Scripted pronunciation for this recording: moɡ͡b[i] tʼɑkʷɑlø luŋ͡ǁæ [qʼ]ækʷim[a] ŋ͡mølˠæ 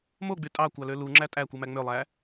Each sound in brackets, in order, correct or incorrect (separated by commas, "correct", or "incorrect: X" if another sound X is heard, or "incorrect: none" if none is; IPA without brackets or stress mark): incorrect: y, incorrect: tʼ, incorrect: æ